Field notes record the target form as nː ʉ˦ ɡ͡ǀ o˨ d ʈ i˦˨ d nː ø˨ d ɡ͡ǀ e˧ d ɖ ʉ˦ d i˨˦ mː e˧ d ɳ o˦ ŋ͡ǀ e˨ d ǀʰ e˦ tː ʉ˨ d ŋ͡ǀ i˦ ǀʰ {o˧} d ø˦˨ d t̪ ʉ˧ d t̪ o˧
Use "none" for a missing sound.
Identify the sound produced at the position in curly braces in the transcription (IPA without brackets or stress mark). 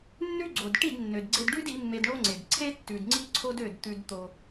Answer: o˦